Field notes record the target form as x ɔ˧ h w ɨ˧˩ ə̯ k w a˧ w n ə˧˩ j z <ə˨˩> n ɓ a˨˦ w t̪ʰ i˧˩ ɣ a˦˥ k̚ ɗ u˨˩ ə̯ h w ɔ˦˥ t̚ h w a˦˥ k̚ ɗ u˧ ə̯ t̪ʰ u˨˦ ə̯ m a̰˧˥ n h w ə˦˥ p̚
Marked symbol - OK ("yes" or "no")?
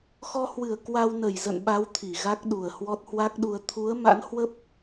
no